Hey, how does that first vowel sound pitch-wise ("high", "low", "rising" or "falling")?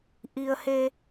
low